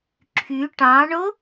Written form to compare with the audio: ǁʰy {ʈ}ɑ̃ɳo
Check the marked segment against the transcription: correct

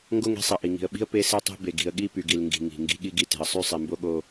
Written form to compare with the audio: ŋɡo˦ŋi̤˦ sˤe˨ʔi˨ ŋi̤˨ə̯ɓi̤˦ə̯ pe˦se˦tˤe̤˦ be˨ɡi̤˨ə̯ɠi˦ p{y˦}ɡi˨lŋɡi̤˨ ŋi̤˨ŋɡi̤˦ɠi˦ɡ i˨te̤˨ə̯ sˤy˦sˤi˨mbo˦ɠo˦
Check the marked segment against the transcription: incorrect: y˨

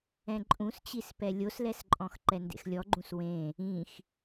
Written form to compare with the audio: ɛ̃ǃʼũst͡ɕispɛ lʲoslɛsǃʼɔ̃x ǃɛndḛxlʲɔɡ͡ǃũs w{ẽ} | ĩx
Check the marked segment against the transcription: correct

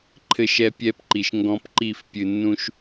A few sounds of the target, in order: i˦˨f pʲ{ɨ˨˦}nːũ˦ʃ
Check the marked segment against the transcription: incorrect: ɨ˨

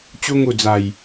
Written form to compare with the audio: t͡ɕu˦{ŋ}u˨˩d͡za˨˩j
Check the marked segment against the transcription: correct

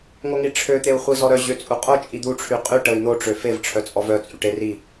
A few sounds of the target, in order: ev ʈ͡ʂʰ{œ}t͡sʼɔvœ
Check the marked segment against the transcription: correct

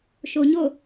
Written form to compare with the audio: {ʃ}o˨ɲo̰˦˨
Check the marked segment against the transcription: correct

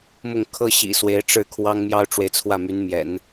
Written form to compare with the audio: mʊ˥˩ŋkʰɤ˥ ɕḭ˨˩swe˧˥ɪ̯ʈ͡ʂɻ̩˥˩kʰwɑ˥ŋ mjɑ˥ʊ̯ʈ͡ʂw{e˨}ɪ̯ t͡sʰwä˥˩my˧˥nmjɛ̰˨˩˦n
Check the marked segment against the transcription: correct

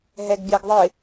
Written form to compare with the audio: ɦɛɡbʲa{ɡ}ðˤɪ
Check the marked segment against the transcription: correct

